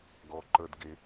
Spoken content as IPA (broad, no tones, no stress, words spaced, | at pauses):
ɡɔǃə˞dɡe